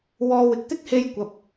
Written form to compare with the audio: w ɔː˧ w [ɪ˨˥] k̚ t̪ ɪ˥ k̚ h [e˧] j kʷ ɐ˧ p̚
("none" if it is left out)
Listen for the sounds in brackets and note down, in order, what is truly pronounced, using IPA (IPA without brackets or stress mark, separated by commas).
ɪ˨˥, e˥